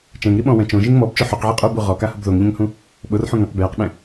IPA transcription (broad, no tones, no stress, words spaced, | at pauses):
t͡ʃɛ̃ŋɾiɓɔ̃wɛ̃ t͡ʃõʒiŋ mɔbt͡ʃʊ ħoqʕe qʼobu ʁɔkahʊb ðoŋʎẽŋhũ | ɓʊrħũ ŋẽq bjaqɓɛ̃